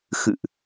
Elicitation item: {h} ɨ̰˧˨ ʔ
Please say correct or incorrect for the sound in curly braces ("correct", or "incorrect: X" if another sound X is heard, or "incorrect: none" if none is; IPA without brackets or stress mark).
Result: incorrect: x